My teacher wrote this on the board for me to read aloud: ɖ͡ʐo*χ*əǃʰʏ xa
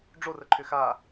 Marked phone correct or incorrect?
incorrect